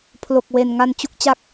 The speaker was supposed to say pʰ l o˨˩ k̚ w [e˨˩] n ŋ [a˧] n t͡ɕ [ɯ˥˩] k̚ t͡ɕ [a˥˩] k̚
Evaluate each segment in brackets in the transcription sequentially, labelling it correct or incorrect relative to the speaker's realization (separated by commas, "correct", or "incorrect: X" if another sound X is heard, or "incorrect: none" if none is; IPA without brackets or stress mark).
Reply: correct, correct, incorrect: u˥˩, correct